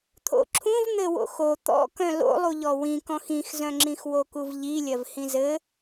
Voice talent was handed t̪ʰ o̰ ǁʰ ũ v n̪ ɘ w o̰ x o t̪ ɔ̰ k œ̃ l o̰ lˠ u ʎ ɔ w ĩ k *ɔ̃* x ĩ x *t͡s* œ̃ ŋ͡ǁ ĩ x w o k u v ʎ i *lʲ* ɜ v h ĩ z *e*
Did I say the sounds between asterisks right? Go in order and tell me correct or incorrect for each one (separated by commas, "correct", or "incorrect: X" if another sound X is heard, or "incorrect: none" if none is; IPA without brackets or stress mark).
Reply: correct, incorrect: z, correct, incorrect: ɘ